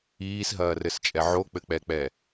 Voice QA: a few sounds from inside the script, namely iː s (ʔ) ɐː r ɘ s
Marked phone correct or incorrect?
incorrect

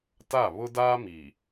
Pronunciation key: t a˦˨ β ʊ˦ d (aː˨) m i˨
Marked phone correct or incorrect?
incorrect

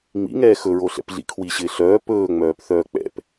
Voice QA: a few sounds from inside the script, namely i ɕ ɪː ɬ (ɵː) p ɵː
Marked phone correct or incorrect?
incorrect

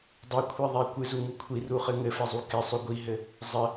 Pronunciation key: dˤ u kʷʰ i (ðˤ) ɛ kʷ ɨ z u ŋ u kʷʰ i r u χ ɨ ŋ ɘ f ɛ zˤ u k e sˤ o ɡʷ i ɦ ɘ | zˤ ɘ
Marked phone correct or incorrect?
correct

